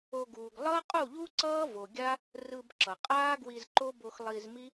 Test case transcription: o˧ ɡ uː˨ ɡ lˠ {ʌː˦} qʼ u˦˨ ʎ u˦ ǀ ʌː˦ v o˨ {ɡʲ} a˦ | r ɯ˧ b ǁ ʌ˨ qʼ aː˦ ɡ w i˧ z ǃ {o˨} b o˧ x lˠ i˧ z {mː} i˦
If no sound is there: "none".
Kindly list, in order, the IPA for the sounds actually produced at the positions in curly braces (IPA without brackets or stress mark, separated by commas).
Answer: ʌː˦, ɡʲ, o˦, m